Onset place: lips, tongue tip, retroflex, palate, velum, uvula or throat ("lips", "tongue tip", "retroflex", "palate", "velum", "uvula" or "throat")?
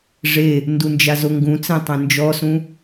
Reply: retroflex